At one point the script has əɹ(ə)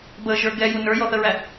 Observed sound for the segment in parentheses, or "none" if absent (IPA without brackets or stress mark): æ